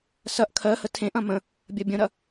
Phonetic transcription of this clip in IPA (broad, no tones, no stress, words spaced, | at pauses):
sɐʔ kʰɜ hətʰẽʔɐ̃ mə̃ | bʲɐbʲə̃ɾɐ